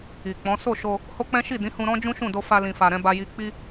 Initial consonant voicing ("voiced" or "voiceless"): voiceless